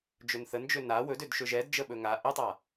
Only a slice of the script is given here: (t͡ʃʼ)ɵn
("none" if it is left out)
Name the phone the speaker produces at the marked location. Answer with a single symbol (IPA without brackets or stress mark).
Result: d͡ʒ